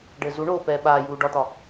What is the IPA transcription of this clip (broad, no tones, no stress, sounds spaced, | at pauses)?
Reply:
ɖ ɘː z u ɳ oː p ɛː ɓ aː j uː ɖ ɒ t̪ ɒ